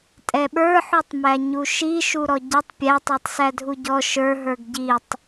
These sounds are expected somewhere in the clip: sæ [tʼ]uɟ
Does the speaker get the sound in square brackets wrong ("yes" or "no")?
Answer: yes